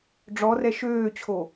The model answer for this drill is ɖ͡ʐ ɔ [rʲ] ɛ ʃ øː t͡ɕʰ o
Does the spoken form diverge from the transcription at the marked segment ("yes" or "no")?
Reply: yes